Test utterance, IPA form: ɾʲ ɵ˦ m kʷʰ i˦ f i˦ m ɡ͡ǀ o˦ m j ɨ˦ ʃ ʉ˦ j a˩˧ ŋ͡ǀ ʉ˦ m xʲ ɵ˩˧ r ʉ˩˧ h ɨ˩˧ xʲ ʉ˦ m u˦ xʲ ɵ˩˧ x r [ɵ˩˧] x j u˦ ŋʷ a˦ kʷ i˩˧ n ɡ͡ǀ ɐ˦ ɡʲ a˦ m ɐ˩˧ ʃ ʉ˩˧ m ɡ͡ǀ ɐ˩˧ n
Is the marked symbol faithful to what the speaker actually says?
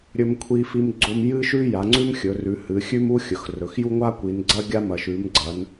yes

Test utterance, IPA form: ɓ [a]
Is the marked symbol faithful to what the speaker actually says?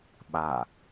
yes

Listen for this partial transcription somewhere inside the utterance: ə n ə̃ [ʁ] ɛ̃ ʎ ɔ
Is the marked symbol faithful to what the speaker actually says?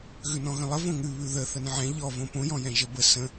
no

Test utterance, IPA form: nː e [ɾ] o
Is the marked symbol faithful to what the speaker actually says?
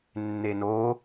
no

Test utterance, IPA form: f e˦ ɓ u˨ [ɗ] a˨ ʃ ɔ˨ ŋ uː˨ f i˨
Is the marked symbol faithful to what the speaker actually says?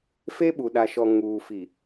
yes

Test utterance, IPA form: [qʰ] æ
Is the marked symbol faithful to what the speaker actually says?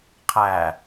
yes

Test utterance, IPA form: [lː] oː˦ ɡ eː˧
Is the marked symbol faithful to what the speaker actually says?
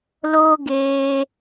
no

